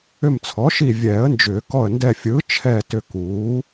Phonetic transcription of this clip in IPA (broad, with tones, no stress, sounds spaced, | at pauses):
ʏ˧˩ m t͡sʰ ɔ˩˥ ʃ i˧˩ vʲ ɛː˨˩˦ ə̯ n d͡ʒ ʏː˨˩˦ k ɔ˧˩ ə̯ n d ɛ˧˩ fʲ ɯː˩˥ t͡ʃʰ ɛː˧˩ t ʏ˧˩ k uː˩˥